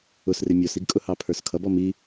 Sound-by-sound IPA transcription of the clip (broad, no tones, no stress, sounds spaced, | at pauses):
ʊ s r ɪ mʲ ɔ s i ɡ kʼ ʊ h ɑ pʰ ə˞ s kʰ ʌ b ɔ m i